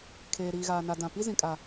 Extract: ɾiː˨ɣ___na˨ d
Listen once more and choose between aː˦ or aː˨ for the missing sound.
aː˨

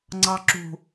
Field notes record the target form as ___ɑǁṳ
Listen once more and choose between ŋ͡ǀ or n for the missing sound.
ŋ͡ǀ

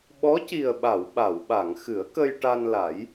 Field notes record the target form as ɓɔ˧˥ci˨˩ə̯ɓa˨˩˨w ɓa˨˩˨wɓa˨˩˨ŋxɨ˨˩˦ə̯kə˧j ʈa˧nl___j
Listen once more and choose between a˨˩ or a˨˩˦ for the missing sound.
a˨˩˦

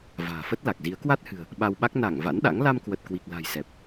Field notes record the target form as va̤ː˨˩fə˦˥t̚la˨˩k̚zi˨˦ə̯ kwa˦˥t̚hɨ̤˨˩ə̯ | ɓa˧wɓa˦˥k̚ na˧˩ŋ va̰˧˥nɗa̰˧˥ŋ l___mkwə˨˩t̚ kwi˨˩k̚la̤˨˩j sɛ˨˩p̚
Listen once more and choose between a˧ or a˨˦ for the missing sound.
a˧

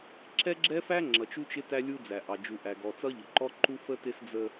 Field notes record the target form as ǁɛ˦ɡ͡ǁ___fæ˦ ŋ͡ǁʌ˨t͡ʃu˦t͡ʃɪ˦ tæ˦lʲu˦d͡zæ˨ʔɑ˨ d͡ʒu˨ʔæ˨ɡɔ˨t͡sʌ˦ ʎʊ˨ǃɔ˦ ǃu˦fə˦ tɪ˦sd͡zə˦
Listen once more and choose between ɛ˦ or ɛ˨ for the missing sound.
ɛ˦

